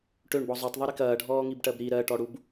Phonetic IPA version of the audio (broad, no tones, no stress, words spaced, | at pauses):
ʈøɳbɔ zˤøtˤðˤuɾik ɐːɖʱɔːŋibʈɜb ɾi ɾɜʈɔɽub